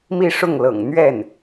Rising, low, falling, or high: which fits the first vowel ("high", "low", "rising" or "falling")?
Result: falling